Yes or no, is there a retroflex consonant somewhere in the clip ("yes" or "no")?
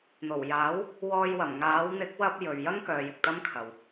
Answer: no